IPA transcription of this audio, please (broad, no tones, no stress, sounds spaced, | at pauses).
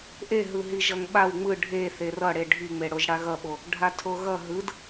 ʔ e ɦ ɯ ɦ i ʒ ʌ ŋ ɓ a w ŋ͡m ɯ ɖʱ e θ e r ʌ ɽ e ɖʱ i ŋ͡m e ɽ o ʒ ɽ a ɣ ʌ ɓ o | ɖʱ a tʰ o ɣ ʌ ɦ ɯ d